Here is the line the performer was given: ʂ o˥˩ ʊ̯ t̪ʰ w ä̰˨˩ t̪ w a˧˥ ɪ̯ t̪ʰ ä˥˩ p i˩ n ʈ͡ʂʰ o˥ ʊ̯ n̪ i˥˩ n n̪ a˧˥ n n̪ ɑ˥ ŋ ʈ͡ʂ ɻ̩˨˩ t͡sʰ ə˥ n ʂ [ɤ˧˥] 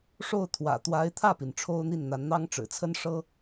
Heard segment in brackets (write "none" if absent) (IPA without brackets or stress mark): ɤ˥